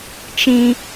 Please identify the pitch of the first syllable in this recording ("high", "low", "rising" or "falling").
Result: low